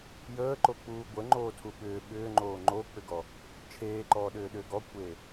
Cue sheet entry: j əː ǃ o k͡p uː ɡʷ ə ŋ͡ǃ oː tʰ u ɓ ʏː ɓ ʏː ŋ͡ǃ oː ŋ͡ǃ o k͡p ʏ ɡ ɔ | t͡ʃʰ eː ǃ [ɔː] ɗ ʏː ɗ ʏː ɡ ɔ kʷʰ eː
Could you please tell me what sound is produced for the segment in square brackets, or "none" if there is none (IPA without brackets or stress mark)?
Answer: ɔː